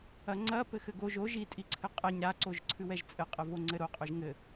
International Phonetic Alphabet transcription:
ɐŋ͡ǀɐ pɘxɘɡoʒ o ʒi tʼiǀʰɘqʼɛɲ ɾa ǀoʒǀʰɨwɛʒt͡sʼɘ qʼɘvoŋ͡ǀɘɾo qʼoʒŋɘ

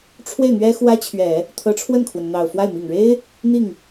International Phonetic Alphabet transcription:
ʈ͡ʂʰwe˥˩ɪ̯n̪ɥɛ˥ xwä˥t͡ɕʰɥɛ˨˩˦ | t̪ʰɤ˧˥ʈ͡ʂʰwə˥˩nkʰwə˩n n̪ɑ˨˩ʊ̯fwa˥˩ɪ̯ mi˨˩ŋɻe˥ɪ̯ | n̪i˥˩ŋ

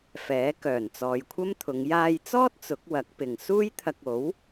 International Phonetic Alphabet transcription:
fɛː˨˥ kœː˨˩nt͡sɔː˨jkʷʰɐ˥mt̪ʰʊ˨˧ŋ jaː˧jt͡sɔː˥t̚ t͡sʊ˨˥k̚wɐ˨˥k̚pɪ˨ŋ suː˥jt̪ʰɐ˧k̚o˨˥w

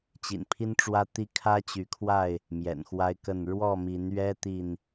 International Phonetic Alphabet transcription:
t͡ɕḭ˨˩npʰi˦nʈ͡ʂwä˦t̪i˦ kʰä˦t͡ɕy˨˦kʰwa˥˨ɪ̯ | mjɛ̰˨˩nxwa˦ɪ̯kə˥˨n ɻwɔ˥˨mi˨˦nɥɛ˦ t̪i˥˨n

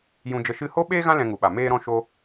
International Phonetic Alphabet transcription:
jũ˧d͡ʒə˧ ʃɨ˧ho˦ ɓeː˦ɣã˦ lɛ̃˧ŋu˨ɓa˨ meː˦ɾɔ̃˦ ʃo˧

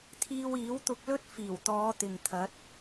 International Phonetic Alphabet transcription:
t̪ʰiː˧wiː˨˥wt̪ʊ˧k̚lɵ˥t̚ fiː˨˩wt̪ɔː˨˧ t̪ɪ˨ŋt̪ʰɐ˨˥t̚

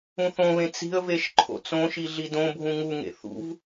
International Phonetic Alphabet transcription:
ũθõβẽ t͡si̤ə̯veʃ ǃʰo̰t͡sõʃi ɮidõbʱũ ŋuŋḛ θṵv

